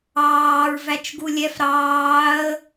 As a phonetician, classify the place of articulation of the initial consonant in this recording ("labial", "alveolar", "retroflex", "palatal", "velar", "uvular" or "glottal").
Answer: alveolar